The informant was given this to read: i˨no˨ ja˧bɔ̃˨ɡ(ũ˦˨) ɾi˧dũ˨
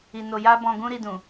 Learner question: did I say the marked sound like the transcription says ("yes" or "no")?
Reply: no